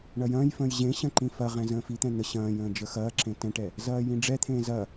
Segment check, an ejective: absent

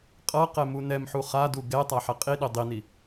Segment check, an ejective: present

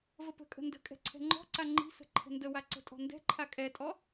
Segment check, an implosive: absent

